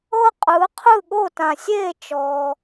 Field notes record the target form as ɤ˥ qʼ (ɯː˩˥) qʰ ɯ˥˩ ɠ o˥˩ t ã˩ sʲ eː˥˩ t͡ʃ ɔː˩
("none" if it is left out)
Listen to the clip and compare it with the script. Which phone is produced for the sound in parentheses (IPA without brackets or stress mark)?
ɯː˩˥